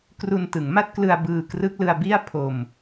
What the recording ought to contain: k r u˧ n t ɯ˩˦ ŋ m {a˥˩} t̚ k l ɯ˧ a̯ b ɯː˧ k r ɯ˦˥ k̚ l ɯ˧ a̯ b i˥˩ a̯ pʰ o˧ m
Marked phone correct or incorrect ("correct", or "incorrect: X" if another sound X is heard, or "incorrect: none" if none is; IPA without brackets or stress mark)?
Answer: correct